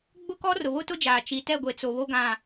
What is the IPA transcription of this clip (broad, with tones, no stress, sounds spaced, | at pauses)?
ɡ͡b ʊ˦ k ɔ˦ r ʊ˨ β ʊ˦ t ʊ˦ d͡ʒ aː˨ t͡ʃ i˨ t ɛ˦˨ ɡʷ e˨ t͡s o˨ β o˦ ɡ ã˦˨